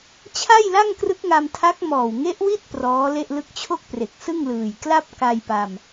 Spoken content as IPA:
t͡ɕʰ a˥˩ j l a˥˩ ŋ k r ɯ˦˥ k̚ ŋ a˧ m tʰ a˦˥ k̚ m ɔː˨˩ w ŋ e˦˥ ʔ w i˥˩ t̚ p r ɔː˦˥ l e˥˩ ʔ l ɯ˥˩ k̚ t͡ɕʰ o˥˩ k̚ p r e˨˩ k̚ s ɯ˥˩ ŋ l ɯː˨˩ j k l a˥˩ p̚ k a˧ j p a˧ m

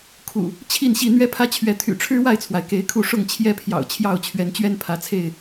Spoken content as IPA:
kʰ ṵ˨˩ | t͡ɕʰ i˥˨ n ɕ i˥˨ n̪ ɥ ɛ˦ pʰ ä˦ t͡ɕʰ ɥ ɛ˨˦ t̪ʰ y̰˨˩ ʈ͡ʂʰ ɻ̩˦ w a˥˨ ɪ̯ t͡sʰ w a˩ ɪ̯ k e˨˦ ɪ̯ kʰ u˥˨ ʂ ʊ˥˨ ŋ t͡ɕʰ j ɛ˦ pʰ j ɑ̰˨˩ ʊ̯ t͡ɕʰ j ɑ˥˨ ʊ̯ t͡ɕʰ ɥ ɛ˨˦ n t͡ɕ ɥ ɛ˦ n pʰ ä˨˦ t͡sʰ e˥˨ ɪ̯

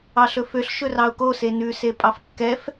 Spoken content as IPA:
ɑ ɬ ɵ f ø ɬ ʃ ɵ r ɑ ʊ̯ k o s e n ʉ s e pʼ ɑ f kː ɛ f

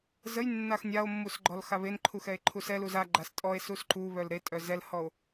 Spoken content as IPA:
z ə j nː a x nʲ a o̯ mː u s ɡ͡ǃ ɔ l x a β e n ǃʰ u x ɛ e̯ ǃʰ u s ɛ l u z a ɡ͡ǃ a s tʼ ɔ e̯ s u s ǃ u β œ l ɾ e tʼ œ z ɛ l h ɔ o̯

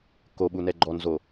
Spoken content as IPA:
k o ɓ u n ɛ ɡ͡ǃ ɔ n z o

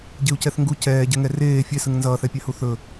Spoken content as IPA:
ɟ e u̯ c ɛ θ ŋ ɡ u c ɛː ɟ ɛ ŋ ɛ r eː fʲ ɛ s ɯ ŋ n z ʌː θ ɛ pʲ a h u θ ɵ

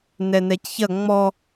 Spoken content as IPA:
n ɛ n ɛ c ç ɐ ŋ͡m ɔ

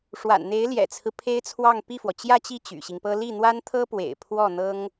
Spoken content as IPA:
ʂ w a̰˨˩ n n̪ e˧˥ ɪ̯ l j ɛ̰˨˩ t͡sʰ ɹ̩˦ pʰ e˥ ɪ̯ t͡sʰ w ɑ˥˧ ŋ p i˥˩ f w ɔ˩ t͡ɕ j ä˥˧ t͡ɕ i˥˩ t͡ɕ y̰˨˩ ɕ i˦ ŋ p ɤ˥ l i˥˩ n̪ w a˥ n t̪ʰ ɤ˥ p w ḛ˨˩ ɪ̯ pʰ w ɔ˥˩ n̪ ɤ˥ ŋ

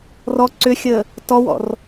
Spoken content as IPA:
r ɔ ǀ ʏ xʲ əː | t ɔ w ɔ̰ r

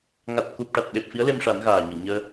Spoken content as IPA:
ŋ a˨˩ t̚ k u˨˩ p̚ ʈ a˨˩ t̚ ɗ e˨˩ p̚ f i˧˥ ə̯ l e˧ m ʂ a˨˩˦ n ɣ aː˨˩ ɲ ə˨˩˨ w ɲ əː˧

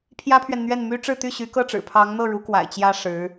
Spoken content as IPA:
pʰ j ä˥ pʰ ɥ ɛ˨ n n̪ ɥ ɛ˥˩ n m y˥ ʈ͡ʂ ɻ̩˥˧ t̪ y˥˩ ɕ y˧˥ k ɤ˥˩ ʈ͡ʂ ɻ̩˨˩ pʰ ɑ˧˥ ŋ n̪ ɤ˥˩ ɻ u˧˥ k w a̰˨˩ ɪ̯ t͡ɕ j ä˥ ʂ ɻ̩˧˥

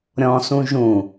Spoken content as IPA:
ɾʲ ɔ̃ s ũ ʒ ũ

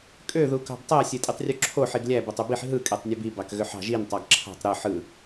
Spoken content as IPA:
kʼ ø ð u k ɑ̤ b tˤ æ sʲ e tʼ i tˤ rʲ u ǁʰ o ħ i ɡ lʲ æ b o tˤ y b i ħ ɦ ɯ kʼ e tˤ nʲ e b i b ɑ k ɣ ø ħ ɑ̤ ʒ i n tˤ ɑ ɡ ǁʰ ɑ̤ tˤ ɾ ɯ ħ ɯ

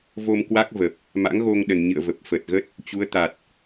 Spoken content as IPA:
v o˧ m k w a˦˥ k̚ v ə˨˩ p̚ | m a̰˧˥ ŋ ɣ o˧ ŋ ɗ ə˨˩ n ɲ ɨ̰˧˨ ə̯ v ə˨˩ p̚ f ə˨˩ t̚ ɣ ə˦˥ t̚ | t͡ɕ u˨˦ ə̯ t̪ a˨˩ t̚

